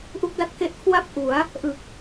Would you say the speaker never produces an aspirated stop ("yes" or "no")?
no